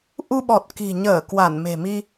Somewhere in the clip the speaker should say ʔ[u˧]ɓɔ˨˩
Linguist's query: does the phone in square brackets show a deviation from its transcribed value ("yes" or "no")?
no